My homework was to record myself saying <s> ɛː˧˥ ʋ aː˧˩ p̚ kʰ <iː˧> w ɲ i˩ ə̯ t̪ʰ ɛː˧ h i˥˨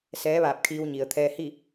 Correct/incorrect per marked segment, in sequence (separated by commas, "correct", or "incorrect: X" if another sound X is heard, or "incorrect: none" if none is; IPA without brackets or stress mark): correct, correct